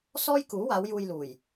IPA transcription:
sɔː˥jkuː˨˥ waː˨˧w juː˧jluː˨˩j

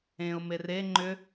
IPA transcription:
ẽʊ̯ mere ŋ͡ǃʏ

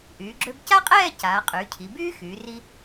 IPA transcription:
ʔyː˩˧ɡ͡ǁø˧b ca˥qʼɛː˥˧ caː˩˧qʼyː˩˧cʰi˩˧ byː˥xyː˩˧ ri˧

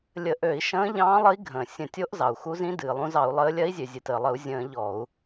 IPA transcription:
lʲə˧˩˧ʔø˧˩˧i̯ ʃə̃ː˧˥ ʎɑ̃ː˧˥lˠə˧˥i̯ɡʱə̃ː˩ sʲə̃˧˩˧tʲo˧˥ʔ zɑ˩u̯xu˧˥zĩ˧˥ dɨː˩lˠũ˧˥zɑ˧˩˧u̯lˠəː˧˥ lʲɜ˧˥i̯zʲø˩zʲɨ˩təː˩ lˠə˧˩˧u̯zʲə̃ː˧˩˧ ʎɔ˧˩˧u̯

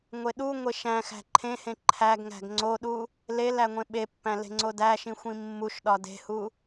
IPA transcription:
ŋʷeɗuŋʷe ʃæ̃ xæ̤ǃʰẽhẽ ǃʰæɡŋæ̤ɡ ŋ͡ǀoɗu | lel æŋʷẽɓepːæ̃ le̤ŋ͡ǀodæʃĩ xʷĩmːuʃɗɒ de̤hu

